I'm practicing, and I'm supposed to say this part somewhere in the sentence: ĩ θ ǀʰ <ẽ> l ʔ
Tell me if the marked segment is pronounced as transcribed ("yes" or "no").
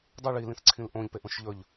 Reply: no